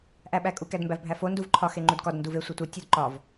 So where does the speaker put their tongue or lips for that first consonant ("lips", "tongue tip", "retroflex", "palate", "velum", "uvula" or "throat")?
throat